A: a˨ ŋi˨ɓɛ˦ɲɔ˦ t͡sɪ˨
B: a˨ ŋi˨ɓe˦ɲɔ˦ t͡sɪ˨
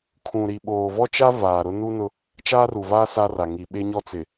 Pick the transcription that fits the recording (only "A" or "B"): B